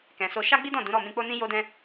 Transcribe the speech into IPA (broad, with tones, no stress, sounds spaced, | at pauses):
k ɛ̃˨ s o˧ ʃ a˦ ɡ͡b i˦ d ɔ̃˦˨ d ũ˨˦ ɾ ɔ˦˨ m ĩ˧ k͡p o˦ n ĩ˦ j o˦ d ɛ̃˦